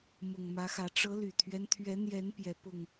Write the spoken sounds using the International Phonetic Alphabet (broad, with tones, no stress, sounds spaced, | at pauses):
m ʊ˨˩ ŋ m ä˨˦ x ä˨˦ ʈ͡ʂ ɤ˨˦ l y˨˩ t̪ʰ ɥ ɛ˦ n t̪ʰ ɥ ɛ˨˦ n̪ j ɛ˨˦ n p j ɛ˨˦ p ʊ˨˩ ŋ